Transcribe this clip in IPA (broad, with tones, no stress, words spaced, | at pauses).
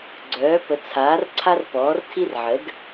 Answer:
ɡ͡ǀœː˩˥ pə˩˥ t͡sʰaː˩˥rǀʰa˦r pɔː˩˥rtʰi˦r ʕə˩˥d